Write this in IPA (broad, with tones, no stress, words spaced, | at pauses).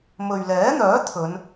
mɵ˨ɥlɛː˨˥n̪œː˨˥ t̪ʰɵ˨˧n